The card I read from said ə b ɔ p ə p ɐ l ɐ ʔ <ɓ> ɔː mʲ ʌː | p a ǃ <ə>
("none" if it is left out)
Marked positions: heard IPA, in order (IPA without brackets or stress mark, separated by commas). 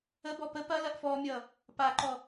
f, ɔ